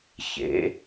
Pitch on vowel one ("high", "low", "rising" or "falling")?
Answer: rising